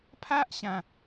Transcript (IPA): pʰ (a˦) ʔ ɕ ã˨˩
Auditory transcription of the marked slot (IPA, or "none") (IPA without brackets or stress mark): a˦